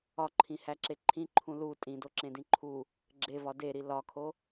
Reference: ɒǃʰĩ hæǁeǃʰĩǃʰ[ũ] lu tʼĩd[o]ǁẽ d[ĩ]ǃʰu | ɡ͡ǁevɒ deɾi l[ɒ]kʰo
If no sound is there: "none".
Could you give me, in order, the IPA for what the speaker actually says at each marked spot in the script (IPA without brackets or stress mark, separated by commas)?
ũ, o, ĩ, ɒ